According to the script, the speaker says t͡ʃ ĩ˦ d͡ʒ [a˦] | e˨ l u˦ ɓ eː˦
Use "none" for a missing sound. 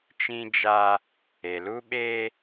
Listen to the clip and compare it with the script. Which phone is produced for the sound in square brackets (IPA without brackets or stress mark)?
a˦